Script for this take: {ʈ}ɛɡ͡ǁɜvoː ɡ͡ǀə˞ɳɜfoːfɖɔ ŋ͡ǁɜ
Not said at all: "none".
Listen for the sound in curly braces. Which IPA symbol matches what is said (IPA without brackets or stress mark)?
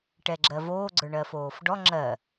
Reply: ʈ